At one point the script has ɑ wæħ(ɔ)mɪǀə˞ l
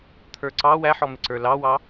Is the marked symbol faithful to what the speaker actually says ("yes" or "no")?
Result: yes